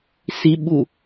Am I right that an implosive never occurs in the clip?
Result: no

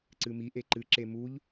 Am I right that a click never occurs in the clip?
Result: no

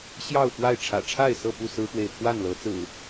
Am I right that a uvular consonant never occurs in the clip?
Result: yes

